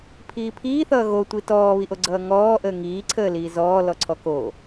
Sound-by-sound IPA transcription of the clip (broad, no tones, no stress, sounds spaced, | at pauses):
pʰ iː pʰ iː θ ʌː ɣ o tʷ i t ɔː β i ʔ o ɡ͡ǀ ʌː ŋ ɔː ʔ əː ŋ iː ǀʰ əː l iː z ɔː l ɔ ǀʰ ɔ k o